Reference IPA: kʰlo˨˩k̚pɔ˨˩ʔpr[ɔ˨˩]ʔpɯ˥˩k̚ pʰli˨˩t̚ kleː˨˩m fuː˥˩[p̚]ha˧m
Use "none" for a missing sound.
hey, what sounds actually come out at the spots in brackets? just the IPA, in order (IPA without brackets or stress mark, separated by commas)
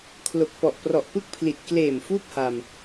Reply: ɔ˨˩, p̚